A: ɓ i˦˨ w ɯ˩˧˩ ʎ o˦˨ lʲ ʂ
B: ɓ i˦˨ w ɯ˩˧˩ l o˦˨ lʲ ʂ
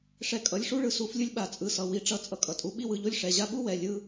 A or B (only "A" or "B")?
A